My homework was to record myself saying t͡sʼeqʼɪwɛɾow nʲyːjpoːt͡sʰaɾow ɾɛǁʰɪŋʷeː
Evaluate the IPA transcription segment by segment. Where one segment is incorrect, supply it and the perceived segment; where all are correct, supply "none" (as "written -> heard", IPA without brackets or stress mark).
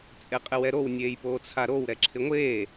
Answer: yː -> eː